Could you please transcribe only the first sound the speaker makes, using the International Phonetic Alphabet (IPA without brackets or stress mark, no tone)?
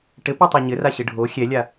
ʈ